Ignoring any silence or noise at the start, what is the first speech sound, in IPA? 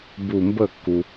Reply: b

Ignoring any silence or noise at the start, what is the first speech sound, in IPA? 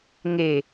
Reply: ŋ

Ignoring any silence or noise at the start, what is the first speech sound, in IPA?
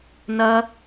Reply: n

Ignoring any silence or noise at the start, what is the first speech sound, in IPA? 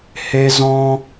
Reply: h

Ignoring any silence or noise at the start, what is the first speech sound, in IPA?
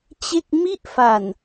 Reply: t͡ɕ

